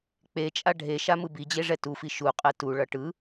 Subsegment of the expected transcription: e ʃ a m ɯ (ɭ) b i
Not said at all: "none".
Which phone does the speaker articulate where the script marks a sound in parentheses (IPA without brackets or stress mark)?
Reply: none